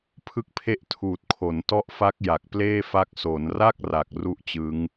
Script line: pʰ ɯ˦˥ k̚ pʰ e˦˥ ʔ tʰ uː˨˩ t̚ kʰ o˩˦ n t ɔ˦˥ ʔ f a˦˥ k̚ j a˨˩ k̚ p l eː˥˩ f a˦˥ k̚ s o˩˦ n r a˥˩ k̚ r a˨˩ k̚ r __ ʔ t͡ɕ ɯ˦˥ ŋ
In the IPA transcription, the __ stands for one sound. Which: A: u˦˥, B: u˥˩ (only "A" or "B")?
A